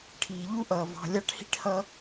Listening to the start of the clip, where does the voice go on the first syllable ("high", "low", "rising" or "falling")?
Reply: low